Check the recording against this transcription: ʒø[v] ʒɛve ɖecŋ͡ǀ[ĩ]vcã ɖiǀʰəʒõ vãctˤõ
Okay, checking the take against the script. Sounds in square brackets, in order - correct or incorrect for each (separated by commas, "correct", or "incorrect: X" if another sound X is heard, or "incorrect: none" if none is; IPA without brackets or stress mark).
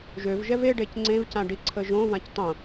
correct, incorrect: ẽ